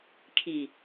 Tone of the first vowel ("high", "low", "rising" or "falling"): low